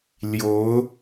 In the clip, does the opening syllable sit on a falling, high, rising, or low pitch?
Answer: rising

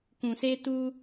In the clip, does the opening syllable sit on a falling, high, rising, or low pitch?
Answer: low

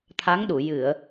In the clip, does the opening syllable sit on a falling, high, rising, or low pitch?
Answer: rising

